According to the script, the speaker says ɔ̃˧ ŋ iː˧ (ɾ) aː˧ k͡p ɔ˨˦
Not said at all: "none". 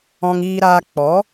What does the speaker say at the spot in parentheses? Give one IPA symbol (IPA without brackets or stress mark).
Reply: ɾ